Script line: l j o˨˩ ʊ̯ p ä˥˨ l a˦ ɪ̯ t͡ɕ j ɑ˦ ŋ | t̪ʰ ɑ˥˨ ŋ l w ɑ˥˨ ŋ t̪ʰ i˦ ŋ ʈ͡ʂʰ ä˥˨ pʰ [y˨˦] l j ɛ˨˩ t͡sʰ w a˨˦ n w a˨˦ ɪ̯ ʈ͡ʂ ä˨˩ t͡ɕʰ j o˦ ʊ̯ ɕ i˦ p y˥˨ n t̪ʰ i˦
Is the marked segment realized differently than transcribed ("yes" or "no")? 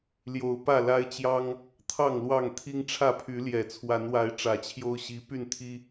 no